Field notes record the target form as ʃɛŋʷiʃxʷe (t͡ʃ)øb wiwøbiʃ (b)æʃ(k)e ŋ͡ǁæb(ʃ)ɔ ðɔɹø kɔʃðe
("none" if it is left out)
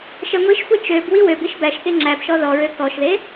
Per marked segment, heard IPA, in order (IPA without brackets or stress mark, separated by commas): t͡ʃ, b, k, ʃ